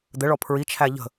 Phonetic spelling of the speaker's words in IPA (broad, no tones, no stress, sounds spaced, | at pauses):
d̪ ə ɭ ɔ pʰ ɹ i t͡ʃʰ æ ʎ ə̤